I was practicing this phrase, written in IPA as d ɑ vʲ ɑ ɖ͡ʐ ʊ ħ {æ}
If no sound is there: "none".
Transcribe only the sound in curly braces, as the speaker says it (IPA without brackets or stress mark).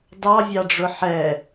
ɛ